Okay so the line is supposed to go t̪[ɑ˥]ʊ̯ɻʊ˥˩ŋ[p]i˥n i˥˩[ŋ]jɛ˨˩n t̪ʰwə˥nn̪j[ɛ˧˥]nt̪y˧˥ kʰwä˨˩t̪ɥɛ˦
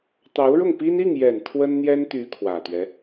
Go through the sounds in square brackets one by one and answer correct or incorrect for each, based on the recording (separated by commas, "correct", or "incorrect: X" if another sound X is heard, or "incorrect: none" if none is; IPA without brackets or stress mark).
incorrect: ɑ˧˥, correct, correct, incorrect: ɛ˥